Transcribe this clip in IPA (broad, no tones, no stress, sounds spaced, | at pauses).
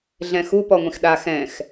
ɮ ɛ̃ x u p ɔ ŋʷ ĩ x ɗ a x ɛ̃ x